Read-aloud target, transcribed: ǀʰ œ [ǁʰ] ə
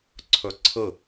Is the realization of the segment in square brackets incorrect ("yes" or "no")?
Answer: yes